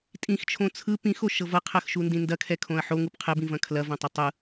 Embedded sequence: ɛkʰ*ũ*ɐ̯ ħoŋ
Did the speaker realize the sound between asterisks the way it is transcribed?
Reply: no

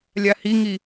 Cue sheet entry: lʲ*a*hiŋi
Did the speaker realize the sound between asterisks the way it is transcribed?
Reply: yes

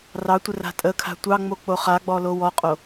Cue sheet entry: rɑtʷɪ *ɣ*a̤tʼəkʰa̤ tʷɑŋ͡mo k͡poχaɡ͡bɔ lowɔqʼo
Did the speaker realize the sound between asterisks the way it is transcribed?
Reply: no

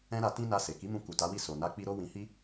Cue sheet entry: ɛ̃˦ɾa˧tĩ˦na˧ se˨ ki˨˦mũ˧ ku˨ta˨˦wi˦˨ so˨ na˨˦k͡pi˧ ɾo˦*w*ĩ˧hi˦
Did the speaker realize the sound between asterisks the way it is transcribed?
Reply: yes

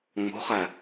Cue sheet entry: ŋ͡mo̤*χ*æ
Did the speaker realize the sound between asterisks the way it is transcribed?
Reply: yes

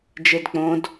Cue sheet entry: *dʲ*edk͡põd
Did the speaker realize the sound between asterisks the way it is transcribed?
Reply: no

